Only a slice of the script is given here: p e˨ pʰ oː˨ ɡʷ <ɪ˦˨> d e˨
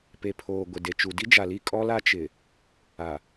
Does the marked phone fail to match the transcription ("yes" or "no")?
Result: yes